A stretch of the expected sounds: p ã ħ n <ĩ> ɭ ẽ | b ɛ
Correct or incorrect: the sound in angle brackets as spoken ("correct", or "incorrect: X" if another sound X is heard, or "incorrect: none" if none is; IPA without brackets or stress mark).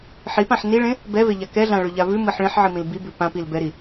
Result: incorrect: i